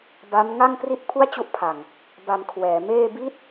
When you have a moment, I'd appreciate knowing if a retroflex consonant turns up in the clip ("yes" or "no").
no